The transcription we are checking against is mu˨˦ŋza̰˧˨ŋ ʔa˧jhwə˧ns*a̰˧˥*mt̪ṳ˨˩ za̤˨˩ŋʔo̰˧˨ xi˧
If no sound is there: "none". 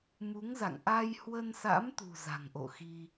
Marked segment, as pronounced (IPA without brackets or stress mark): a̰˧˥